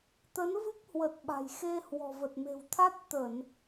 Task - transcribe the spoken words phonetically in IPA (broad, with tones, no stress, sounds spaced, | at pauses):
t̪ ə˨˦ n v ɨ˦˥ k̚ h w ə˨˩ t̚ ɓ a̤˨˩ j x e˧ h w ɔ̤˨˩ v ə˨˩ t̚ m e̤˨˩ w t̪ʰ a˦˥ t̚ t̪ ə˧˩˨ n